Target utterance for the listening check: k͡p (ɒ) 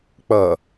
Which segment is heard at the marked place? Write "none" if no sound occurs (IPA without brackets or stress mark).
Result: ʌ